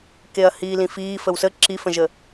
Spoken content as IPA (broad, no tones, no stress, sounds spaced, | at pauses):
k e ɐ̯ h iː l ĩ f iː f ə w s ə ǁ i f ə̃ ʒ ə